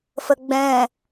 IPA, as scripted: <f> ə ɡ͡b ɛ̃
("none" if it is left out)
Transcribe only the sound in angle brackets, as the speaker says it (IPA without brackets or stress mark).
f